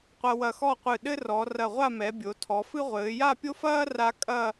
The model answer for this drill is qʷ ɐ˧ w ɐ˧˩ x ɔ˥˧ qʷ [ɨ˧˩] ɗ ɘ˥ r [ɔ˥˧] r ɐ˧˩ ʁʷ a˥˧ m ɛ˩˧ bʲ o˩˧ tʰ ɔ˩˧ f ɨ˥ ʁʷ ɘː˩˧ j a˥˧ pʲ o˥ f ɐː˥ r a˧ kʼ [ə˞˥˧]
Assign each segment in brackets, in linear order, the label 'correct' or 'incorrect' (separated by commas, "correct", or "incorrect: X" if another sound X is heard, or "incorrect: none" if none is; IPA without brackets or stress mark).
correct, incorrect: ɔ˩˧, incorrect: ɐ˥˧